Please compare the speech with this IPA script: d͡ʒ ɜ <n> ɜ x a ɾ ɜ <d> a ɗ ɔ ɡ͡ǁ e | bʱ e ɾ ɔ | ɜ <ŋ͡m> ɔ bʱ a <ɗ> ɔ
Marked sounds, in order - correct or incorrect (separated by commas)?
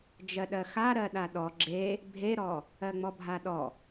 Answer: incorrect, incorrect, correct, correct